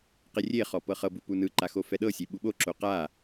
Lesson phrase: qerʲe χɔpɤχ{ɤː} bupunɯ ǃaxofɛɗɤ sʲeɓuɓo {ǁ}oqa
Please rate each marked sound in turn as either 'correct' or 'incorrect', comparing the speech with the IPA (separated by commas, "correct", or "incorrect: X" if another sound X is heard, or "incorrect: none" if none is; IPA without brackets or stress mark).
incorrect: ɤ, correct